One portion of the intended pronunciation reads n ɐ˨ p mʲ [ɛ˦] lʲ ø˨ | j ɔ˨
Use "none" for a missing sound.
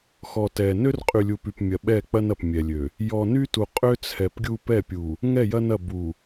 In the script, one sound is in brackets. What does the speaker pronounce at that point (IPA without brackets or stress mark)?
ɛ˨